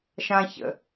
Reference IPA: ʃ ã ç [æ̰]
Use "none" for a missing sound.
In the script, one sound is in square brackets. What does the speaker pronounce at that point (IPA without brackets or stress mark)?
ə̰